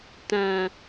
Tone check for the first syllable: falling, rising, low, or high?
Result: low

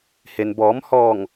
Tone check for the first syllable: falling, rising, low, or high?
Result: low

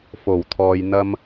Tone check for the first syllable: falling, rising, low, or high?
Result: low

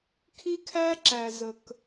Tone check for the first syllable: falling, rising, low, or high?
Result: high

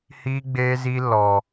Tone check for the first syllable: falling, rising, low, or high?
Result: high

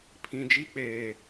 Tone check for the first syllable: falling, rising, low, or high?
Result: low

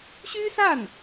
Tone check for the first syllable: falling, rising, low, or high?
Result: high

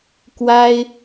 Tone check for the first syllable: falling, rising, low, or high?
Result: high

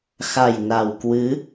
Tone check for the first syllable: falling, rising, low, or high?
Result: low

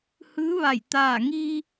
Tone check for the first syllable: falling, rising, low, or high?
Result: rising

